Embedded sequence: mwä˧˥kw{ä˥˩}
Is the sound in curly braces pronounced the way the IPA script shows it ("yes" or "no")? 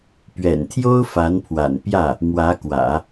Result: no